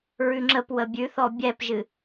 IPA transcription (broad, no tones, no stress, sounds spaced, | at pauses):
ɹ ʉ ŋ͡ǁ ə p w ə bʲ ʉ θ ɔ bʲ ɛ p ʒ ɨ